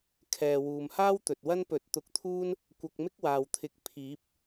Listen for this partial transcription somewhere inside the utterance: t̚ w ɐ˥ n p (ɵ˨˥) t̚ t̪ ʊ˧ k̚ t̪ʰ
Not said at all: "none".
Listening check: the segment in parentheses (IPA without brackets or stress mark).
ɵ˨˥